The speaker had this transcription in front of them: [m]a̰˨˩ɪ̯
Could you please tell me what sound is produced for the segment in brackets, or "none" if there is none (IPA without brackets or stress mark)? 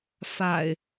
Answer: f